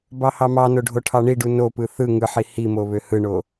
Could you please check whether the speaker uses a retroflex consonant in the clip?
yes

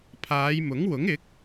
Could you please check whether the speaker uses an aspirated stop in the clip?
yes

